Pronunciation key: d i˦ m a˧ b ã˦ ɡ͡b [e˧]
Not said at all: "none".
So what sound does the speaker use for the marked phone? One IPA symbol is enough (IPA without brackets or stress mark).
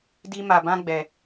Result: ɛ˧